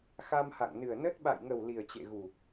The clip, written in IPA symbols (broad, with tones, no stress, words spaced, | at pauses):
xa˧mha̰˧˨ŋnɨ˨˩ə̯nə˦˥t̚ ɓa̰˧˨jŋə˨˩w li˨˩ə̯t͡ɕḛ˧˨ɣu˨˩